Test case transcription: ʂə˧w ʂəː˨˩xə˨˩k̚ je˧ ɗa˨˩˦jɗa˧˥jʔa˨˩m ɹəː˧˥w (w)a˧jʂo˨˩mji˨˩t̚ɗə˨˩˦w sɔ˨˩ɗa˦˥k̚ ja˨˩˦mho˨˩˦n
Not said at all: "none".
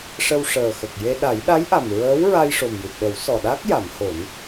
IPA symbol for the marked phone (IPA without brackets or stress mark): ɹ